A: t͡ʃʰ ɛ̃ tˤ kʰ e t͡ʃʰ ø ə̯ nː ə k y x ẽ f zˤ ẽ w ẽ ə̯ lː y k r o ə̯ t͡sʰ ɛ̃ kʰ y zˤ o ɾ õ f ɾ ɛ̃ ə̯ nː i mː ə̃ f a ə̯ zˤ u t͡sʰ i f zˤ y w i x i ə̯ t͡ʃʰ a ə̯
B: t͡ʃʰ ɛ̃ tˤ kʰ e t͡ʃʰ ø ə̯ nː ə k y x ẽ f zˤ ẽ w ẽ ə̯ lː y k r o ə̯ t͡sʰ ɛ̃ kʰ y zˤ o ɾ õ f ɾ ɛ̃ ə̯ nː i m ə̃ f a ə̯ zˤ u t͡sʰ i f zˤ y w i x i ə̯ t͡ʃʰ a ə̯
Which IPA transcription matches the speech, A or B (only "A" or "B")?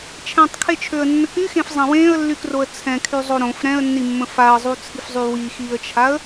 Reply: A